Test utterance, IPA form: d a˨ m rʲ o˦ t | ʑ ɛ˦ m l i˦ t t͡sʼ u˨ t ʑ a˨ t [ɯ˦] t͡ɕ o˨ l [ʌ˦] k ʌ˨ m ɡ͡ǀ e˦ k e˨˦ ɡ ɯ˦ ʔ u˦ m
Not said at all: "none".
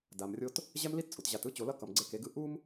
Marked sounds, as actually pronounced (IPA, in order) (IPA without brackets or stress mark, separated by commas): ɯ˦, ʌ˦